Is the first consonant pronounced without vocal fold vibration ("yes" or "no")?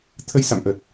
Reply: yes